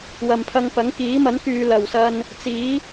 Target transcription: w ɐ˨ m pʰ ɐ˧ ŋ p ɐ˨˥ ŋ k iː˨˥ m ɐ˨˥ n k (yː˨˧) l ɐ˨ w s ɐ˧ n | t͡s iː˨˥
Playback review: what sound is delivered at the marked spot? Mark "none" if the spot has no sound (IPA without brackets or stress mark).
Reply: yː˨˧